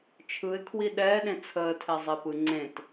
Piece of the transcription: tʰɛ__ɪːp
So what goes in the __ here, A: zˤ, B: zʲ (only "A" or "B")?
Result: A